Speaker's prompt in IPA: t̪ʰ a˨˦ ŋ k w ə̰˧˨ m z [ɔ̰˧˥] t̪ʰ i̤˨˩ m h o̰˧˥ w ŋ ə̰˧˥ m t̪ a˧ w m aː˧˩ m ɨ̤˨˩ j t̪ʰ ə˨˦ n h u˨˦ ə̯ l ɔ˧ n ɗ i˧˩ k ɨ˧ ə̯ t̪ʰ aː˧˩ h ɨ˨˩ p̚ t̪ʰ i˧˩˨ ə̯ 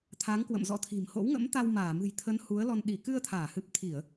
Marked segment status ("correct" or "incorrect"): correct